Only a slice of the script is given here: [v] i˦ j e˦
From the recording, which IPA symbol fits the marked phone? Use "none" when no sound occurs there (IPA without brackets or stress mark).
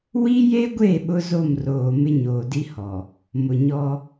w